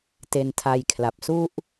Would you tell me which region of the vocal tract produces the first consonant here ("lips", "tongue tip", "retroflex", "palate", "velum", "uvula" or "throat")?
tongue tip